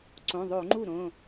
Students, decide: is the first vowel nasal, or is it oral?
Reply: nasal